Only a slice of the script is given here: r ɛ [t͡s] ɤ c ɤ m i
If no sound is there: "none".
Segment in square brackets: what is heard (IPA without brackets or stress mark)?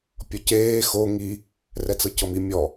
t͡s